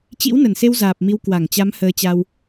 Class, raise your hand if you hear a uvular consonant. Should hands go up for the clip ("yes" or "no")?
no